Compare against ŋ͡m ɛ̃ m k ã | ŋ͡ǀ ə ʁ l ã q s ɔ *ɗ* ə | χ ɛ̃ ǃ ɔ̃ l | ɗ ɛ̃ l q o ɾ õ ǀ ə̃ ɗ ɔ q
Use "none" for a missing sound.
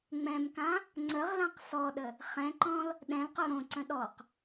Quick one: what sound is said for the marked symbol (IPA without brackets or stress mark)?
ɗ